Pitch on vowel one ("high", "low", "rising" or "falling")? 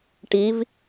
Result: rising